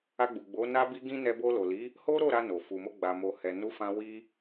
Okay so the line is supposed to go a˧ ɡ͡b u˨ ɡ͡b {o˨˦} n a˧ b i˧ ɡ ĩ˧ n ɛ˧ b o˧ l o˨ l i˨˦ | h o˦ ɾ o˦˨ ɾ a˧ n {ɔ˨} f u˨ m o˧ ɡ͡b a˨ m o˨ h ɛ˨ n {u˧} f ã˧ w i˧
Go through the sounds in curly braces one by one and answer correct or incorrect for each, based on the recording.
correct, incorrect: o˨, incorrect: u˨˦

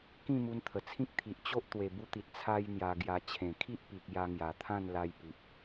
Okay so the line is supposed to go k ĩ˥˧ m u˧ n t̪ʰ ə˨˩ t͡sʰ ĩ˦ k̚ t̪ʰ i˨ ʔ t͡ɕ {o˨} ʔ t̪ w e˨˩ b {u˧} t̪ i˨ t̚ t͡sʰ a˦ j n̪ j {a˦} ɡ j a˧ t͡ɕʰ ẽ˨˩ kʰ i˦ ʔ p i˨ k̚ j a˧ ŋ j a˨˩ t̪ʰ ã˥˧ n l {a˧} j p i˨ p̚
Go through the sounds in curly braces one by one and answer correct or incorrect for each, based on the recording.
incorrect: o˦, correct, incorrect: a˧, correct

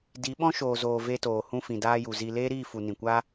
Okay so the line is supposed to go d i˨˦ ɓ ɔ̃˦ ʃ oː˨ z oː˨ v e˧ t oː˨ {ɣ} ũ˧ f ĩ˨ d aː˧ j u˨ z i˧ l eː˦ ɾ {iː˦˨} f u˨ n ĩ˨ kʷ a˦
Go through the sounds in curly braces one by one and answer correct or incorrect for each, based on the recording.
incorrect: h, correct

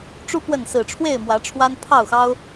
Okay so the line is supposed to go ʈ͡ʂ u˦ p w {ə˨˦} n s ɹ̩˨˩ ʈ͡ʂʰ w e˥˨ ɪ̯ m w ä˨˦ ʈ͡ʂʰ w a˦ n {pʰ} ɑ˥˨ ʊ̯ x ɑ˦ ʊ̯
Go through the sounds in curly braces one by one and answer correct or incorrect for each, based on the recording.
incorrect: ə˥˨, correct

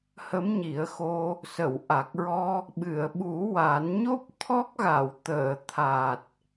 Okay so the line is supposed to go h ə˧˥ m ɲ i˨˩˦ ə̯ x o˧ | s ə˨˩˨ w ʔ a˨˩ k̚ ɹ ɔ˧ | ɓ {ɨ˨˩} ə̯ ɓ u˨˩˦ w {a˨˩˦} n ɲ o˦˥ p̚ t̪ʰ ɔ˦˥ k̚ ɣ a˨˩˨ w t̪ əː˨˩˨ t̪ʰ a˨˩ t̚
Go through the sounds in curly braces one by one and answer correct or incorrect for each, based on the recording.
incorrect: ɨ˨˩˨, correct

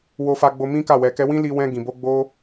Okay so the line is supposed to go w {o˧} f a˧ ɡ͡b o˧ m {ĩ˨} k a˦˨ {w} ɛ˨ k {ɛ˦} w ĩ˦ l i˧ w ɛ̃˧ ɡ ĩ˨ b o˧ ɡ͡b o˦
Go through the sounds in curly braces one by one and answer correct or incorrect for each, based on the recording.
correct, incorrect: ĩ˦, correct, incorrect: ɛ˧

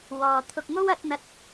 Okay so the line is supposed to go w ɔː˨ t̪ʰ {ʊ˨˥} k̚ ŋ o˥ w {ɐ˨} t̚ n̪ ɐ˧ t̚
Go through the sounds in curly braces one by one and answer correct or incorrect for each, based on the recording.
incorrect: ʊ˧, incorrect: ɐ˨˥

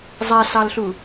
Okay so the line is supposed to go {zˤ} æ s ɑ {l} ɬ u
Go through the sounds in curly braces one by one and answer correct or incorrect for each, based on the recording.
correct, correct

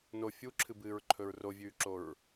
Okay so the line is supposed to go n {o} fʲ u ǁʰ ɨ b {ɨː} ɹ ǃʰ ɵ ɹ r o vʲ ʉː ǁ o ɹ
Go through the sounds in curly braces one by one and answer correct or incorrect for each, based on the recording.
correct, correct

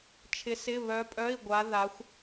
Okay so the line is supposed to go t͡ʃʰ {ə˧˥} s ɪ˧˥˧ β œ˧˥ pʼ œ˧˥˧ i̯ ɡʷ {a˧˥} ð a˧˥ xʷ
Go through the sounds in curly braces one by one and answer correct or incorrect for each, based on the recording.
incorrect: ɪ˧˥, correct

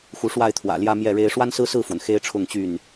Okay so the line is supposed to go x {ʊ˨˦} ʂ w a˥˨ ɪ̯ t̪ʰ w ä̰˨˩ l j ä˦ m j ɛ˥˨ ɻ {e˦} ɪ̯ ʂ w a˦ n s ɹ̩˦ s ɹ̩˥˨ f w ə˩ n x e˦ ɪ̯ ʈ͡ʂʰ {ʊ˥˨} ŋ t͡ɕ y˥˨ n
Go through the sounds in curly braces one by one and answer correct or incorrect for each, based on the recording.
incorrect: u˨˦, correct, correct

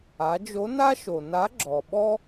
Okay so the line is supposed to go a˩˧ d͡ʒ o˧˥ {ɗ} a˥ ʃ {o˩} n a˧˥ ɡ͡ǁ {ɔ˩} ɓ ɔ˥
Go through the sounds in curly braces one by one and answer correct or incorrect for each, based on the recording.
incorrect: n, correct, correct

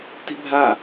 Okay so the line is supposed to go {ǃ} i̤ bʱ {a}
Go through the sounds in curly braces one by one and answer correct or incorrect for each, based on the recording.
incorrect: t, correct

